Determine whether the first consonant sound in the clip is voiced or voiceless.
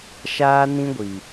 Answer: voiceless